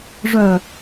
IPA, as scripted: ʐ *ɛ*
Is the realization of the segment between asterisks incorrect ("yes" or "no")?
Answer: yes